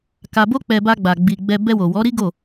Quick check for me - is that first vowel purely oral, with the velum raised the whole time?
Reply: yes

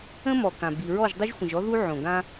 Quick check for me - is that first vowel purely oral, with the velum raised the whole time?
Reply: no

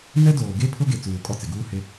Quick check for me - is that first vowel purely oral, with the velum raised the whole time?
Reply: yes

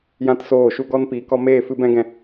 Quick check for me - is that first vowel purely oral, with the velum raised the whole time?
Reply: no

